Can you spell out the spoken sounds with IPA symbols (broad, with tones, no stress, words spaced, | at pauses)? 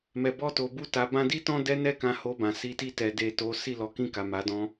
mɛ˨bɔ˧to˨ bu˧ta˨bã˧di˦ tɔ̃˦dɛ˦nɛ˦˨kã˧ ho˧bã˨si˧ ti˧ tɛ˨de˨ to˨˦ si˦˨lɔ˨˦kĩ˦˨ka˨ ma˨˦dɔ̃˦